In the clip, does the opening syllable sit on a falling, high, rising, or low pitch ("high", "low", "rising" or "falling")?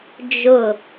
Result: falling